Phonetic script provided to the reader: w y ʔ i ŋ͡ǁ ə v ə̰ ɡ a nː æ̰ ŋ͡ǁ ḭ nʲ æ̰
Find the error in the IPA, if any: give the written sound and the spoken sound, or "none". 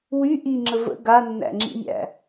none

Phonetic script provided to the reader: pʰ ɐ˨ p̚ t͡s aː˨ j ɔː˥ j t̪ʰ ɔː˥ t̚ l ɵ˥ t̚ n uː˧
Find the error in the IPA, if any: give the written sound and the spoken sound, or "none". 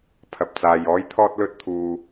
n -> t̪ʰ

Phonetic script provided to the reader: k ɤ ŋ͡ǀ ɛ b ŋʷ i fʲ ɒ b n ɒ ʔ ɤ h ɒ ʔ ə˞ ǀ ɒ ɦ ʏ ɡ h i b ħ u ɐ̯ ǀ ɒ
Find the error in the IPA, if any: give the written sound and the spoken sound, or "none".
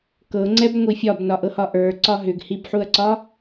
none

